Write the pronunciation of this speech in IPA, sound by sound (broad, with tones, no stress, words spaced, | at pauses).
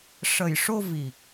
ʂə˨˩jʂo˧ vi˨˩k̚